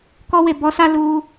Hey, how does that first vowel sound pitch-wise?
high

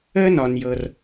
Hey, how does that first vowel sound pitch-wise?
high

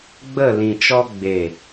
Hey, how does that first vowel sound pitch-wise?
falling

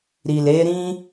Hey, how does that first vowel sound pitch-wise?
low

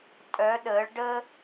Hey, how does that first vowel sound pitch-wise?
rising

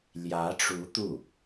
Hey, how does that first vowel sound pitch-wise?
rising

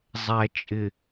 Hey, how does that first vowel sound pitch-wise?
low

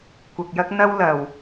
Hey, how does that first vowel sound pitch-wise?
low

